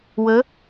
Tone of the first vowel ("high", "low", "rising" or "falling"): rising